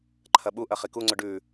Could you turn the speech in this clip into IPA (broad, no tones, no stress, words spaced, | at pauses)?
ǃʰɐɓuʔɐ χikuŋ͡ǀɵ ɖʉ